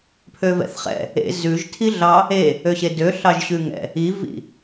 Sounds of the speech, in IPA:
pʰ ø v ɛ̰ θ χ ɛ̰ | ḛ z ʉ ʒ tʰ i ɮ ɑ | e | ø ɕ e d ø ɬ ɑ ʒ ɕ ʉ ŋ ɛ̰ | i v ḭ

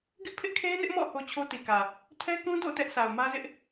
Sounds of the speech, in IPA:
ɡ ɪ˦ ʔ pʰ ɪ˦ ʔ kʰ e˦ ɪ̯ n ɪ˦ ʔ m ɔ̰˦˨ h o˦ t͡ɕʰ o˦ t i˨ k ä˨ | tʰ ɛ˦ k ũ˦ d o̰˦˨ t ɛ˦ ʔ sʰ a˨ ʊ̯ m ä˦ z ɪ˦ ʔ

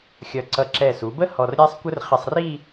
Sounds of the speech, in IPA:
xʲ ʌ˧˩ ǀ ʌ˧˩ ǁ ɛ˧˩ s u˩˧ b ə˥ h ɔ˧ r ɾʲ æ˥ sˤ kʷ ə˥ r χ ɪ˧ sˤ r i˥˧

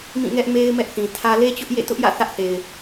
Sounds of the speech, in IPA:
m ĩ˦˨ ŋ ɛ˦ ʔ m e˦ ɪ̯ m ɛ˦ ʔ θ ĩ˨ tʰ ä˦ l e˦ t͡ɕ ʊ˦ ʔ j ḛ˦˨ t ʊ˦ ʔ j ä̰˦˨ θ ä˦ ʔ θ e˨ ɪ̯

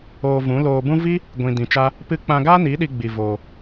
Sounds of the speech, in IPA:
oː˧ v ũ˨˦ l oː˧ b ũ˦ v i˦ | ɡʷ ĩ˧ d ĩ˧ t͡ʃ a˦ | p ɨ˧ k͡p ã˧ ɡ aː˦ n iː˨˦ ɗ i˧ ɡ͡b i˧ v oː˧

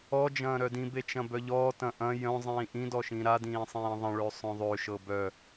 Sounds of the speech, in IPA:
ɔ d͡ʒ ɐ̃ː ɾ œ d ĩ b e t͡ʃ ɐ̃ b œ ʎ ɔː t ɐ̃ ʔ ɐ̃ j œ̃ zˤ ĩː ʔ ĩ d ɔ ʃ ĩ ɾ a d ĩː sˤ ĩː ðˤ ɐ̃ ɭ ø sˤ œ̃ ðˤ ø ʃ ɤ b œ

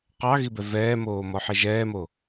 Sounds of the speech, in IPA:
q ɑ ɣ i b ɛ v ɛː m oː m ɔ ħ e ʒ ɛː m o

